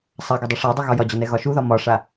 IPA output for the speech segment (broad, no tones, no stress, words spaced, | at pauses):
sˤaɡɒ dˤuʂadˤu ɣɒjɒd͡ʑɒnɛ ɣɒʃuðɒ mɒʂa